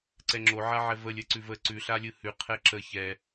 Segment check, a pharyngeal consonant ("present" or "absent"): present